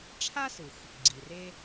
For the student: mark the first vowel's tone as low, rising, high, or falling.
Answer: high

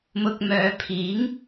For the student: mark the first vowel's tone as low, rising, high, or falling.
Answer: low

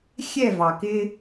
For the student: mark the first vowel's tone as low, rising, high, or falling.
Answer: falling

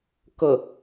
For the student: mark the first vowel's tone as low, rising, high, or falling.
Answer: low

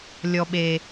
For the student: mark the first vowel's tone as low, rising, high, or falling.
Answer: low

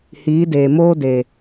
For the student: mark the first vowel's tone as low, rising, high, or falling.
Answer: rising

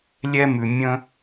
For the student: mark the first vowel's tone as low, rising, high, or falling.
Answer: high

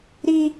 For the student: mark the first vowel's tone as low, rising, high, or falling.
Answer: high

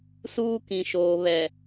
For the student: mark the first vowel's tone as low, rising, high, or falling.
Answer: high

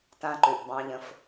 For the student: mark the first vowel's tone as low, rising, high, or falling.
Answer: high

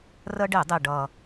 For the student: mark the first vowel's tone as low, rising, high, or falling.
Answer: high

